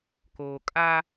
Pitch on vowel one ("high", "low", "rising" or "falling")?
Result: low